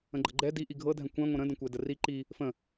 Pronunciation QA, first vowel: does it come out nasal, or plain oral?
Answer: nasal